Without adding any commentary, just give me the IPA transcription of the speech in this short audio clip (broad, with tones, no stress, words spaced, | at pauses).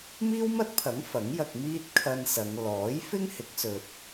miː˥wmɐ˥t̚pʰɐ˨˥ŋ fɐ˨˥ŋ jɐ˧k̚miː˥t̚ kʰɐ˧n sɐ˨˧ŋ lɔː˨˥jfɪ˥ŋhɪ˨˥k̚ sɵ˧t̚